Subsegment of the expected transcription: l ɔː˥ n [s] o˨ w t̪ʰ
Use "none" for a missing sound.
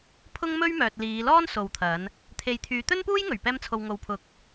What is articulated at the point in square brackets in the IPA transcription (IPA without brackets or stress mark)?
s